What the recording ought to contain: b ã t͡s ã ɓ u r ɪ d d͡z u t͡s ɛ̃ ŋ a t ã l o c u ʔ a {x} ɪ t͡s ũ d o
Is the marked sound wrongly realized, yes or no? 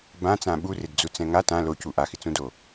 no